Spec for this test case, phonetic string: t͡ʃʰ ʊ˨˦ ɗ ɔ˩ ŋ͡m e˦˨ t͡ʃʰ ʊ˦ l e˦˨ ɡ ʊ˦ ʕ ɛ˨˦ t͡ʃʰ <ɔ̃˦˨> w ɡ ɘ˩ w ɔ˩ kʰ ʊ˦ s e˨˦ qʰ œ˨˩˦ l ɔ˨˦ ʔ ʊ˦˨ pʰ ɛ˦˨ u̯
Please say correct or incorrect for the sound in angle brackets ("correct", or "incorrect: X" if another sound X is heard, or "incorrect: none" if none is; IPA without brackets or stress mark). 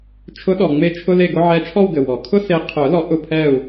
incorrect: ɔ˦˨